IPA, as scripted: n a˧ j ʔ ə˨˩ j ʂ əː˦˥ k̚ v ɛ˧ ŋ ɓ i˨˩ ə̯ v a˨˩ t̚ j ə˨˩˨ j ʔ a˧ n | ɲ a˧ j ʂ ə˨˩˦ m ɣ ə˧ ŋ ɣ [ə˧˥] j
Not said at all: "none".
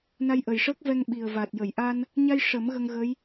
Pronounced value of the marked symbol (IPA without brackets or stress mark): ə˧˥